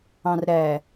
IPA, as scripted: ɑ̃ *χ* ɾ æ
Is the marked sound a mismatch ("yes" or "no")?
yes